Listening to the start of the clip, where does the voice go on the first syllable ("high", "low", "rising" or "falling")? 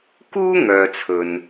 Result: high